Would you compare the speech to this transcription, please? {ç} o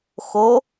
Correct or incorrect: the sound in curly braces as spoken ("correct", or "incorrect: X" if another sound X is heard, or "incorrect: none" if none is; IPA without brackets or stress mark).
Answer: incorrect: x